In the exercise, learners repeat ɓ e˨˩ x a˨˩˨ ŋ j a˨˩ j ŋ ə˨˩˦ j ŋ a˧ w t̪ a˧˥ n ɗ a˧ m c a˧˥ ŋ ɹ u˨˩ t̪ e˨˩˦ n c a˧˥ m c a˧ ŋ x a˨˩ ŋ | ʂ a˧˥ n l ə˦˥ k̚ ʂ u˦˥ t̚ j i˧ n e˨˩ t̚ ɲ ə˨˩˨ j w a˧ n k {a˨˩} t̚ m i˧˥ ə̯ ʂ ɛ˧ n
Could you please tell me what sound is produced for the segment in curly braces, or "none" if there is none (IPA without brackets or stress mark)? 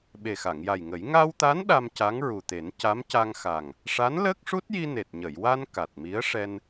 a˨˩